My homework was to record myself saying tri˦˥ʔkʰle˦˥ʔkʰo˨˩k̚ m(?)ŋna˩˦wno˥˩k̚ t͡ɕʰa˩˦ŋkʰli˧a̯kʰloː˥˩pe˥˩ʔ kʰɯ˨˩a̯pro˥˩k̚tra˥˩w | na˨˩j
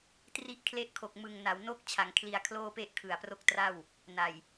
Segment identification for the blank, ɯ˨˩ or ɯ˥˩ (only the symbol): ɯ˨˩